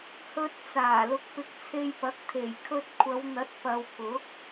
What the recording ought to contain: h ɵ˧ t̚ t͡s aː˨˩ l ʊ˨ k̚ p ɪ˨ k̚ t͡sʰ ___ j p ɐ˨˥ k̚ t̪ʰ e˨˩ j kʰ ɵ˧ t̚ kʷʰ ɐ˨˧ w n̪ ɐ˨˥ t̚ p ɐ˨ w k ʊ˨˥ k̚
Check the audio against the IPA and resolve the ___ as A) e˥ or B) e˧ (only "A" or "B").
B